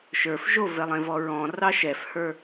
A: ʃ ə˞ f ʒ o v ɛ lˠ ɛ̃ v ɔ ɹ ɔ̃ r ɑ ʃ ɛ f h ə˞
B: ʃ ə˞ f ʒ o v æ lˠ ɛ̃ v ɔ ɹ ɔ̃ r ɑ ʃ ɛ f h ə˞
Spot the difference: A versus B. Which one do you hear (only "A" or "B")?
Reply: A